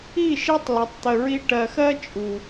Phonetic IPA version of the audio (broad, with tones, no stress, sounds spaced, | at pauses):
i˦˨ ʃ i˦ tˤ l ə˨ tˤ t̪ ə˨ ɹ i˦ ʈ ɜ˨ x ɜ˦ t͡ʃʼ u˨